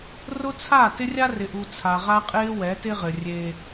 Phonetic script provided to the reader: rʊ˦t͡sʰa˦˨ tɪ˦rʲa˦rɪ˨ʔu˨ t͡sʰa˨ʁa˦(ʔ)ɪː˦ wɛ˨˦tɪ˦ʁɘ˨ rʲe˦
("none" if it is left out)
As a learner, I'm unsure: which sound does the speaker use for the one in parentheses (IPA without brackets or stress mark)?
qʼ